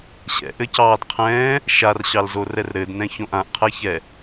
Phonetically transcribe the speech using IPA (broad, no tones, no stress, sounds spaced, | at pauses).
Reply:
ɕ ɛ̰ ʔ ɘ c ɑː d qʰ ɛ̃ː | ʃ a r ɕ ɑ l z o r ɛ r ɾ ɘ d n ɛ̃ ç õ ʔ ã ʔ qʰ ɛ ç ɛ